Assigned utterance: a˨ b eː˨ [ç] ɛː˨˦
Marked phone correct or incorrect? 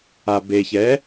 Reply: correct